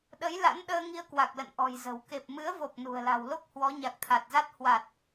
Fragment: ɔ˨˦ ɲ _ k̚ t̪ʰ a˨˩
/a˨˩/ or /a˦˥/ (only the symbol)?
a˨˩